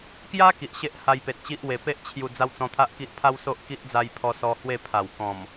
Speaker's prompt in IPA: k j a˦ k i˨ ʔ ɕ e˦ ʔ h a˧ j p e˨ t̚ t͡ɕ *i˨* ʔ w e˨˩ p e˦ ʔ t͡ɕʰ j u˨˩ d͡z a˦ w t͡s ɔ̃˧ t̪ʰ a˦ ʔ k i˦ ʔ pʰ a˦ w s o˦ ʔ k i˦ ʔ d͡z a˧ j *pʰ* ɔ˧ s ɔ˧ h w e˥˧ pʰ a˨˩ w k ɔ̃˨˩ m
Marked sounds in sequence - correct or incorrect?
incorrect, correct

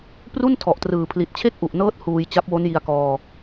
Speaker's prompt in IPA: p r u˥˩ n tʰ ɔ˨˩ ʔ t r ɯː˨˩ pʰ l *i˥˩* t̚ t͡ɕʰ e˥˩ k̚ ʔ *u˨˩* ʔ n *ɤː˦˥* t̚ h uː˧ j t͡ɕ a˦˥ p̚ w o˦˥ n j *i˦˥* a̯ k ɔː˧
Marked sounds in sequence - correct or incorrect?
incorrect, correct, correct, incorrect

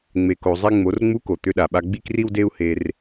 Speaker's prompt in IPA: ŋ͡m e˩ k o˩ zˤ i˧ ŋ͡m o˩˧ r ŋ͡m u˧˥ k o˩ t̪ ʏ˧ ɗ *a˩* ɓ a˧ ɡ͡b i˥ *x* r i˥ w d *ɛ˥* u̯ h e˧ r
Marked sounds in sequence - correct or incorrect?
correct, incorrect, incorrect

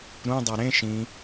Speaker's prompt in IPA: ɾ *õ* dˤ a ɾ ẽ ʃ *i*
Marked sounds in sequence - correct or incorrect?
incorrect, incorrect

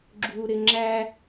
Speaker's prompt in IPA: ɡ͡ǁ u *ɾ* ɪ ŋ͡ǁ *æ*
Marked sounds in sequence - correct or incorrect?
correct, correct

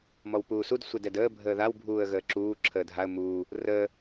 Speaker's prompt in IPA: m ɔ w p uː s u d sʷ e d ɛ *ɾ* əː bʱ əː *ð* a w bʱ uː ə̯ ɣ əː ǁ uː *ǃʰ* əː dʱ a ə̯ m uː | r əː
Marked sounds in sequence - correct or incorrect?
incorrect, correct, incorrect

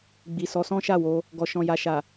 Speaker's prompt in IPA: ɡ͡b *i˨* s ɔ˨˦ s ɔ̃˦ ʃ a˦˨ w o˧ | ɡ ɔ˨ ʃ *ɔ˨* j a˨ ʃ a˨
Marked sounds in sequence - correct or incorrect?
correct, incorrect

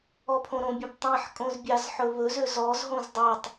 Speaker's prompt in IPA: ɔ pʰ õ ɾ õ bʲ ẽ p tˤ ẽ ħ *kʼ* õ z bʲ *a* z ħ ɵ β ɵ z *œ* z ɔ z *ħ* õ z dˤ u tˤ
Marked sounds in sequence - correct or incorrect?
correct, incorrect, incorrect, incorrect

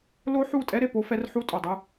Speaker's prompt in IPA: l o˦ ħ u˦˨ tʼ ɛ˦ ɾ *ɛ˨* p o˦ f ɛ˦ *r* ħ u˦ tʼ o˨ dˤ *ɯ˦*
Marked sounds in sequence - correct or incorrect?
incorrect, correct, correct

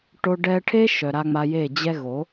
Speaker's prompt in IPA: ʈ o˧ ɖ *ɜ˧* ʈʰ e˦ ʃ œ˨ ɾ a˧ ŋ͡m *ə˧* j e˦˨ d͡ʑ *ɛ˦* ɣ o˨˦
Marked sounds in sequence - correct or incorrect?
incorrect, incorrect, incorrect

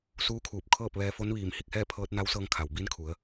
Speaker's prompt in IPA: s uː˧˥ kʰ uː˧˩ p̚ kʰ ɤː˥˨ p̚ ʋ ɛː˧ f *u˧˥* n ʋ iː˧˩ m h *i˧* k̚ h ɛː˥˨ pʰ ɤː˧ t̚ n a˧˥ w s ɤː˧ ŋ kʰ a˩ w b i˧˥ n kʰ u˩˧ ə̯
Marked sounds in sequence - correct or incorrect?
incorrect, incorrect

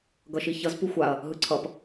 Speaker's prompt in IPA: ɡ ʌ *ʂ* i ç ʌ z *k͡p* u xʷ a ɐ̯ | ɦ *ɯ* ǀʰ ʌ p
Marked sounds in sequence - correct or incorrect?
incorrect, incorrect, correct

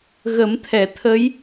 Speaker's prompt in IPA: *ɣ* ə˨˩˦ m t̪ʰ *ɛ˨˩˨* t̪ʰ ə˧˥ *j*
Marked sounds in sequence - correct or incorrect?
correct, correct, correct

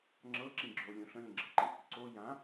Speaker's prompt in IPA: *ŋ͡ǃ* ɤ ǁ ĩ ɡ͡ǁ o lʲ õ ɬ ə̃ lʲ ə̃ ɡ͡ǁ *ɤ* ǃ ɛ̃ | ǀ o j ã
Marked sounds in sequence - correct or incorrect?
incorrect, correct

